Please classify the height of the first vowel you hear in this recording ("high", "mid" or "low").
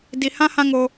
high